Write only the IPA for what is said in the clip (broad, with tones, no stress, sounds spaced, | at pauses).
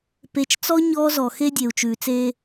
p e˨ t͡ʃ t͡s ɔ˦ ɲ ɔː˦ z ɔ˨ x e˦ dʲ e˨ u̯ t͡ʃ ʉː˨ t͡s eː˦